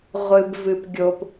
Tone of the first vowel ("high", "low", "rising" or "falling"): low